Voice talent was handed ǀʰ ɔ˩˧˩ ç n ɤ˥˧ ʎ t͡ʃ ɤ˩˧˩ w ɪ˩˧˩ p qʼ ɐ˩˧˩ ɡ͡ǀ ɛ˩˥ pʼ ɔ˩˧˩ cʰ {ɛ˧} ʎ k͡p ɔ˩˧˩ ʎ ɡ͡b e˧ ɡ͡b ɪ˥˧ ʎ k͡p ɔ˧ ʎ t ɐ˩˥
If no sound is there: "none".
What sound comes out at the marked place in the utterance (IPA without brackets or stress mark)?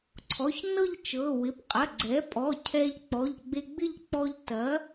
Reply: ɛ˧